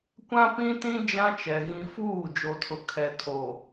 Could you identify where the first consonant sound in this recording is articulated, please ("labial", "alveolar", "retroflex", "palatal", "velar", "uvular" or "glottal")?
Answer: velar